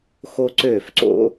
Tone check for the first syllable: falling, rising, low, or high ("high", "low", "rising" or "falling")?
high